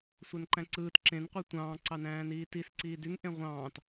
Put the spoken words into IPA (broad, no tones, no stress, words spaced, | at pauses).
sʷænǃæ̃ǀɯːt ǁẽn qʷetʷɑ̃ː ǀɑnæ̃ːniːtis ǀiːdyŋ ʔẽʁʷɑ̃ːt